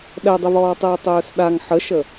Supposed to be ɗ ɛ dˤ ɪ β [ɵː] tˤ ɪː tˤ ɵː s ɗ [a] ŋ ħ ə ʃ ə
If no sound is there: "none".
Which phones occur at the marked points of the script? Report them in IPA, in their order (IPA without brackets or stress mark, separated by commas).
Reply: ɔː, a